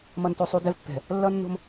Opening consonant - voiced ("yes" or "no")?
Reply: yes